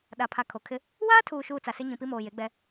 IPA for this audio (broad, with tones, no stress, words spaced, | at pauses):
ɗa˨pʰa˨ kʰo˨kʰɪ˦ | waː˦tʰuː˨ʃuː˨ t͡sa˨sɪ˦ ɲĩ˨pi˦moː˨ je˨˦ɡ͡bɛ˦